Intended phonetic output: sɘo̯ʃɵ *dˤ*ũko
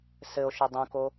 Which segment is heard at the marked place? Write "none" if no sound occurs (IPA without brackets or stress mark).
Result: dˤ